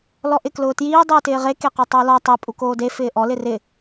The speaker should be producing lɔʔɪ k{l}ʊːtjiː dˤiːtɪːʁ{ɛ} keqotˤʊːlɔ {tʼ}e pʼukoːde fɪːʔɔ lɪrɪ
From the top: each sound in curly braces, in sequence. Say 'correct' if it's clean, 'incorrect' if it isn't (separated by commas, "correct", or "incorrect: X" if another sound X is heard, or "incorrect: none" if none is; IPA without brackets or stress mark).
correct, incorrect: e, incorrect: tˤ